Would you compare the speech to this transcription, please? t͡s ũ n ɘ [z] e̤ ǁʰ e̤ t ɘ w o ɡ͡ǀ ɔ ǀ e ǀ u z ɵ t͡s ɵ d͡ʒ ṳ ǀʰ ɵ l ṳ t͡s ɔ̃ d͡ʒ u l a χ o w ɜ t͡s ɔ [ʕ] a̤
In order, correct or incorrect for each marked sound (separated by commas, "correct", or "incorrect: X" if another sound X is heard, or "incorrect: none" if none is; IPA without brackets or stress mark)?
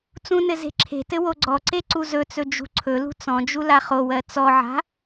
correct, correct